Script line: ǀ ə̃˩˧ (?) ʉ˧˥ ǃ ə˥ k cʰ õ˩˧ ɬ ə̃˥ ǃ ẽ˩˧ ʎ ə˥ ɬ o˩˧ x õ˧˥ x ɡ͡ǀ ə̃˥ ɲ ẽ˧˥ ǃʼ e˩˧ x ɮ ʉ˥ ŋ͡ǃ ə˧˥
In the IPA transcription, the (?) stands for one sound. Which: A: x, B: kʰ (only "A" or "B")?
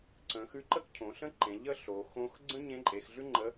A